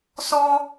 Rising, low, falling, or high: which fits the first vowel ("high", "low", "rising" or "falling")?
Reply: high